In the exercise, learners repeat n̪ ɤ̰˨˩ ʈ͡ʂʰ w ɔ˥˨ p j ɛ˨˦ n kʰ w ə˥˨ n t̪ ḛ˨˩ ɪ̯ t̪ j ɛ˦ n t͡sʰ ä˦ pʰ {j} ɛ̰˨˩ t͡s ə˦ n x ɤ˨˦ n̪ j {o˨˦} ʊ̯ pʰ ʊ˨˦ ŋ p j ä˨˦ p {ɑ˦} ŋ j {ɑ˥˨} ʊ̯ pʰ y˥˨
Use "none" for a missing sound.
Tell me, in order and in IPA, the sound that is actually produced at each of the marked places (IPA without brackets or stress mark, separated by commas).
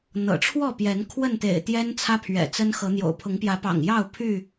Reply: ɥ, o̰˨˩, ɑ̰˨˩, ɑ˥˨